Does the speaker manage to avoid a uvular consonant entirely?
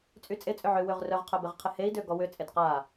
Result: no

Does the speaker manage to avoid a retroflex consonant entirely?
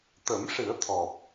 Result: no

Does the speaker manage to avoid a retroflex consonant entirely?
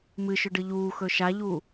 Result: no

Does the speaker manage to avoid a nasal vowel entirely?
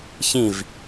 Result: no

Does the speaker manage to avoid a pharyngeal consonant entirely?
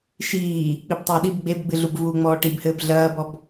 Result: yes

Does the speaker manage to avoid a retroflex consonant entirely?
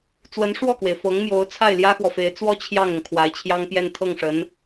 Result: no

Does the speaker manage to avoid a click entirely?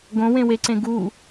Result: no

